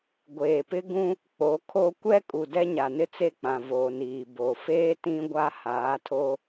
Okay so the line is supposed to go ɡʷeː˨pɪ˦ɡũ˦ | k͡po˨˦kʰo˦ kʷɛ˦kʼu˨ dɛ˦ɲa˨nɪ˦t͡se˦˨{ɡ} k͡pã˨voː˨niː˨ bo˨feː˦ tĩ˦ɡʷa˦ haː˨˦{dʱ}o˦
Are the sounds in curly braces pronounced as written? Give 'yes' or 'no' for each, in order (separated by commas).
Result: no, no